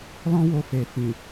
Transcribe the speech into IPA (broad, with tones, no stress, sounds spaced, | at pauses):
l ɔ̃˦ w o˧ f e˨ f ĩ˨